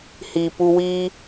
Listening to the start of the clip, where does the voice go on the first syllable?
low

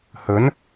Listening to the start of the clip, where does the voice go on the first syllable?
rising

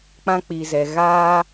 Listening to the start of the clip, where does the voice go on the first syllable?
high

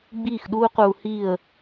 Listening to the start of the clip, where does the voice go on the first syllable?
falling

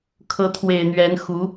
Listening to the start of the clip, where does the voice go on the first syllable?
rising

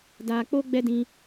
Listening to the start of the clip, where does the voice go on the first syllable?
high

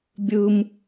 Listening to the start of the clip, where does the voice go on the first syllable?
low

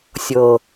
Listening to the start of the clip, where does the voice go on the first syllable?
low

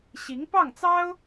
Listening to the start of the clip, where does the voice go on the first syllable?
rising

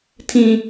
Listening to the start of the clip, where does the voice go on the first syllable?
high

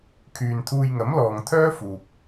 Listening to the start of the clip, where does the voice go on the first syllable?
low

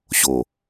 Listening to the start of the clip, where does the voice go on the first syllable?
low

